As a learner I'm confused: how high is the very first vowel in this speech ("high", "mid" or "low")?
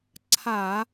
low